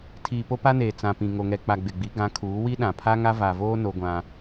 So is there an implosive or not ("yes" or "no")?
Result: yes